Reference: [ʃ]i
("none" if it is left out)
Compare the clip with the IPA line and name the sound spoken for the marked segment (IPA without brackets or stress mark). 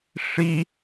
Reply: ʂ